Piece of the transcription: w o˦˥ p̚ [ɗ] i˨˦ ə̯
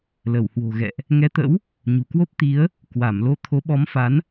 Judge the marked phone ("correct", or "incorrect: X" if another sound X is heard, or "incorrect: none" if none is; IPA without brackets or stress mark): incorrect: t̪